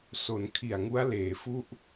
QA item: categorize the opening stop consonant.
aspirated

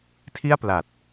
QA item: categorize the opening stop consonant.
aspirated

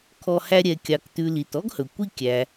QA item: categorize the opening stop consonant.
aspirated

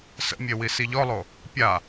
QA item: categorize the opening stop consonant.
plain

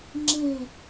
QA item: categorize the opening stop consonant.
click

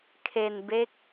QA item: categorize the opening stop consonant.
aspirated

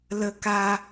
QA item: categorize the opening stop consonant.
plain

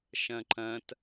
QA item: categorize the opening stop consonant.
click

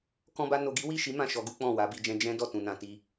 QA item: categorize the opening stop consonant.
plain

